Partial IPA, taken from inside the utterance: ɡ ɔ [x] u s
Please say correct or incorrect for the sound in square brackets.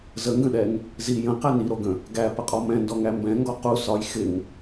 incorrect